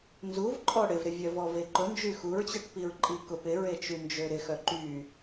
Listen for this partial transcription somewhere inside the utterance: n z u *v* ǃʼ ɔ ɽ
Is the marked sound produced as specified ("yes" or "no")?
yes